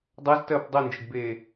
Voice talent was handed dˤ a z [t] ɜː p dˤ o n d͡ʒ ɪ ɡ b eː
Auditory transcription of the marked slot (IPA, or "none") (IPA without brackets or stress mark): t